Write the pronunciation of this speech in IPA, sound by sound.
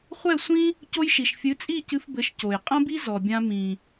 χʷ ɛ˥˩ sʷ ĩ˥ | c o˧ j ʃ i˩ ʃ fʲ ɨ˩˥ t͡sʼ i˥˩ c ɨ˧ f b ɘ˩˥ ʃ c o˩ j qʼ ɐ̃˥ b i˥ z ɔ˩ bʲ ã˧ m ĩ˩

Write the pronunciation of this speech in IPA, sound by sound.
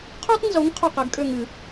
qʰ u˦ tˤ n z o˨˦ ŋ qʰ o˦˨ q ɛ˨˦ ɡ kʼ ø˦˨ ŋ ɨ˨˩˦

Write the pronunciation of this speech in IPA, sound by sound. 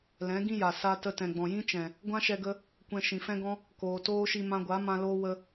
l ɛ̃˨˦ ɡ ĩ˦ j a˨ s a˧ t ə˧ t ɛ̃˨ ɡ͡b ɔ̃˨ j ĩ˦ t͡ʃ ɛ̃˨ | ɡʷ ã˦ ʃ ɛ˧ ɡ ə˧ | kʷ ɛ̃˧ ʃ ĩ˨ f ɛ̃˦ ɡ ɔ̃˦ | k oː˨ t oː˦ ʃ i˧ m ã˧ ɡʷ a˨˦ m ã˧ l oː˦ w ə˧

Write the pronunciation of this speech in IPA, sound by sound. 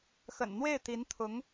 x ə̰˨˩ n n̪ w e˥˩ ɪ̯ t̪ i˧˥ n t̪ʰ ʊ˧˥ ŋ

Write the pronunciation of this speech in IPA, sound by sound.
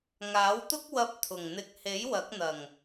ŋ aː˨˥ w t̪ ʊ˥ k̚ w ɐ˥ p̚ t̪ʰ ʊ˨˩ ŋ n̪ ɪ˧ k̚ h e˨˥ j w ɐ˨˥ k̚ n̪ ɐ˨˩ ŋ

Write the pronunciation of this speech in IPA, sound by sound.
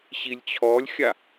ɕ i lʲ t͡ɕʰ ɔ lʲ xʲ a

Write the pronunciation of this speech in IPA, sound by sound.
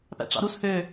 p æ̰ ʈ͡ʂ ɑ̰ ɾ u s h ø

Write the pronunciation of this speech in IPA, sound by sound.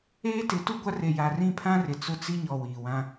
eː˦ t ɪ˨˦ t u˦ ɡʷ a˦ r e˨ j a˨ r ĩ˦˨ pʰ ã˦ r ɪ˨ t͡s ʊ˦ t͡s i˦ ɲ ɔ˨ w iː˨ w ã˦

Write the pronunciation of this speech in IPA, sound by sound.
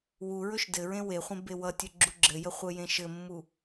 w u ɹ ɵ ʃ d ɘ ɹ ẽ w e χʷ ẽ b e w ʌ tʲ ɵ ɡ͡ǁ u ɡ͡ǁ ɘ j ə χʷ ɘ j ẽ ʃ ɘ mː u

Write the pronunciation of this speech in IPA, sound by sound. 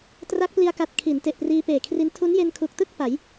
t r a˦˥ k̚ p l i˧ a̯ k a˨˩ t̚ kʰ i˩˦ n t e˨˩ ʔ p r iː˧ p eː˨˩ kʰ r i˦˥ n tʰ u˦˥ n j e˧ n kʰ u˨˩ k̚ t ɯ˥˩ k̚ p a˩˦ j

